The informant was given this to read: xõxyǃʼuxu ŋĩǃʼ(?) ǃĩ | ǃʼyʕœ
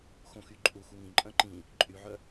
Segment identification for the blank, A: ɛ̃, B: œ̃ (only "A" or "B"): B